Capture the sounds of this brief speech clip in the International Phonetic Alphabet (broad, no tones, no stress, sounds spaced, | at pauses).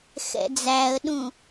x ɛ̰ d͡z æ ə̯ ɗ ũ